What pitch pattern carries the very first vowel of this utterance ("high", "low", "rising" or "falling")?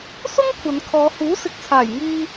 high